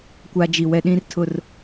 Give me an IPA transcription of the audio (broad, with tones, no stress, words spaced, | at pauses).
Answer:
kʷa˦d͡ʒi˨ wɛ˦ɗĩ˦rtʰʊ˦˨r